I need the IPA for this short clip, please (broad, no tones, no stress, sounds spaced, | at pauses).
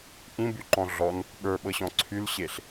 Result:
ʔ ĩ b y ǃ ɔ̃ ɮ ɔ n | ɓ ə˞ ɓ ɤ ɕ ɔ̃ ǀʰ y l ɕ e ɬ